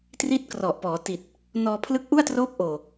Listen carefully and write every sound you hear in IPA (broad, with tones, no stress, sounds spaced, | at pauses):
t r i˦˥ t̚ k r ɔ˨˩ ʔ p ɔː˩˦ t i˨˩ t̚ | n ɔː˧ pʰ l ɯ˦˥ k̚ ʔ u˥˩ a̯ t r oː˦˥ p̚ ʔ oː˨˩